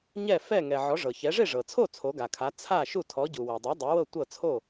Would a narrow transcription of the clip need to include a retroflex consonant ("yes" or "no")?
yes